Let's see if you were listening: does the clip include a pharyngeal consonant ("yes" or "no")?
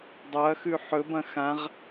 yes